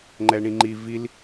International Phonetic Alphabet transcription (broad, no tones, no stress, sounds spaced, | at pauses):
ŋ͡ǃ ɛ ɳ ĩ ŋ͡ǃ i v i l